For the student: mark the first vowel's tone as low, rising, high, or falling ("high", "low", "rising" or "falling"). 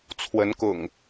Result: rising